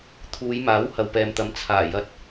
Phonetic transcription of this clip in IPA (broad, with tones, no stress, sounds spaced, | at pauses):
t̪ʰ uː˨˧ j m aː˨˥ w h ɐ˨ w p ɛː˨ m t̪ ɐ˨˧ m t͡sʰ aː˨˩ j ɐ˧ t̚